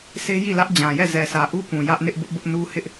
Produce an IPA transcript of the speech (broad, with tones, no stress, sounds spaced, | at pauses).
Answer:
s e˦ j i˦˨ l ä˦ ʔ d͡ʑ ã˨ j ɛ˦˨ z ɛ˨ sʰ ä˨ ʔ u˦ p ũ˨ j ä˦ ʔ n ɪ˦ ʔ b ʊ˦ ʔ b ʊ˦ ʔ n u˦ h ɪ˦ ʔ